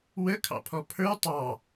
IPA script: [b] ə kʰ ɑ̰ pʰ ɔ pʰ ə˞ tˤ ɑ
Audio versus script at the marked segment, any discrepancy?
yes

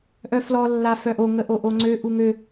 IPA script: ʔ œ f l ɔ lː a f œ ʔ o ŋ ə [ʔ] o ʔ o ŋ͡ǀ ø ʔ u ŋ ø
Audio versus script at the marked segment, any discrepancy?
no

